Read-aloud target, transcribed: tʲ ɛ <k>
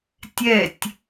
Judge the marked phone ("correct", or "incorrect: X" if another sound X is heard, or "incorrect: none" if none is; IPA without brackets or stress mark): incorrect: tʲ